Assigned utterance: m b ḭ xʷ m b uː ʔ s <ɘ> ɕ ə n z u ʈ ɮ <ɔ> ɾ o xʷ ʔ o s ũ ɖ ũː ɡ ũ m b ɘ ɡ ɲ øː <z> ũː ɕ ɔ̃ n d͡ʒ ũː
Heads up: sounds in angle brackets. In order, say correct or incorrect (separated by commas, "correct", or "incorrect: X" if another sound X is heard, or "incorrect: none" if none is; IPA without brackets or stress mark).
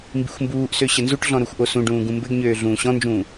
incorrect: ø, incorrect: ɔ̃, incorrect: ɮ